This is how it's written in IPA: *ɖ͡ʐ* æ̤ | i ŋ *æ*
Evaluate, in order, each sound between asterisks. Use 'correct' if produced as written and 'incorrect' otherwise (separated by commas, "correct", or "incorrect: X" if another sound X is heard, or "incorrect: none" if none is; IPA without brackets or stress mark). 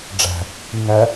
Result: correct, correct